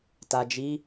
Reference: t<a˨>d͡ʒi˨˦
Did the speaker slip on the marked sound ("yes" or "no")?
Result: no